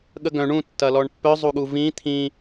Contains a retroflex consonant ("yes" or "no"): yes